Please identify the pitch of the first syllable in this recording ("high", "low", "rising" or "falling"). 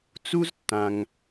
high